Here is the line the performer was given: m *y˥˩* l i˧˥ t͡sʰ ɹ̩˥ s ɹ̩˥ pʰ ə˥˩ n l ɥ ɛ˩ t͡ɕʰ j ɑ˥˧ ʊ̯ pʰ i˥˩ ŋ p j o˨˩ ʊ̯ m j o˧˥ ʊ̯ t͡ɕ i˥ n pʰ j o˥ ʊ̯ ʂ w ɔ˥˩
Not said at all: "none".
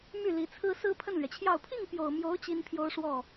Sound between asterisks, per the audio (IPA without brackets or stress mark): y˥˩